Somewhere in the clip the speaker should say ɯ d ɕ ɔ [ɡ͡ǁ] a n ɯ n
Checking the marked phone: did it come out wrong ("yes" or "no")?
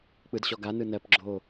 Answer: yes